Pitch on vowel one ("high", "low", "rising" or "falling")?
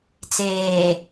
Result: low